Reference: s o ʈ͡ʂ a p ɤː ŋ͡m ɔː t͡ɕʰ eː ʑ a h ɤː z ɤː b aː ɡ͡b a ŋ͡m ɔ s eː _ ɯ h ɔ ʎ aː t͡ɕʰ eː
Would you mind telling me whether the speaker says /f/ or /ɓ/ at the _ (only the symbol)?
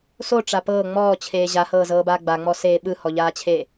ɓ